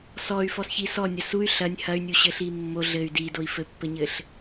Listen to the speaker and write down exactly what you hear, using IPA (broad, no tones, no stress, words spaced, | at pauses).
sɔy̯fɔsçi sɔnʲɐ suy̯ ɬɐnʲ hɐy̯nʲuɕɘɬi mːo ɮɘy̯ didoi̯ fɘpːɘɲɘɬ